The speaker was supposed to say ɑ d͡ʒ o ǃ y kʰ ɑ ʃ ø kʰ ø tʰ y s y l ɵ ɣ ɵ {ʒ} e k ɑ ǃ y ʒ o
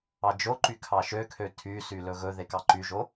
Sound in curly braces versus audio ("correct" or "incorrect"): incorrect